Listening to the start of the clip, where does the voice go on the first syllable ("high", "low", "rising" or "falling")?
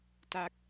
falling